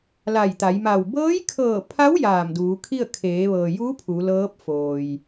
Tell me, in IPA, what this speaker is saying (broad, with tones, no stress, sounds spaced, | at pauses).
l a˧˩ j t̪ a˩˧ j m a˧˩ w b ɤː˧˥ j kʰ ɤː˧˩ pʰ a˧˥ w j aː˧˩ m d uː˩˧ kʰ i˥˨ ə̯ kʰ eː˩˧ ʋ ɤː˩ j uː˧˥ pʰ u˩˧ l ɤː˧˥ p̚ f oː˩ j